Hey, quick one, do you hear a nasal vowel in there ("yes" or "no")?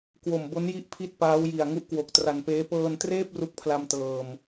no